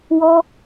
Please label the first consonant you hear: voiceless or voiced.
voiced